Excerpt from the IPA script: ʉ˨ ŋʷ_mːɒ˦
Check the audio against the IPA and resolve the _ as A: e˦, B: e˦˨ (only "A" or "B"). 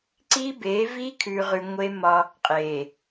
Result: A